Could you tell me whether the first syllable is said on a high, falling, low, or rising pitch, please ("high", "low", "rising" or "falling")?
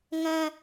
high